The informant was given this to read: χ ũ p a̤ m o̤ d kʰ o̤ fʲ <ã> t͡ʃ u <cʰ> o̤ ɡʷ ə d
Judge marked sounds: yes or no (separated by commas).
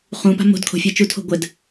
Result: no, no